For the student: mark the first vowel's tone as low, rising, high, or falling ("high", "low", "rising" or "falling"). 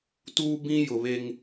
high